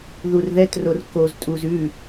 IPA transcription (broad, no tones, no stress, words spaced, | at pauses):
ðurðɛtror koz tʼuz ʉ